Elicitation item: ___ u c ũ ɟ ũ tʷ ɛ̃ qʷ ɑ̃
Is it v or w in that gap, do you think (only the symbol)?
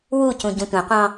w